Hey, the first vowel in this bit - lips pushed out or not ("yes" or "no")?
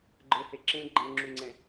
no